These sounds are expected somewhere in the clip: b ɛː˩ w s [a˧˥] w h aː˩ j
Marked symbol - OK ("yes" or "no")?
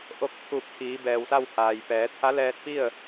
no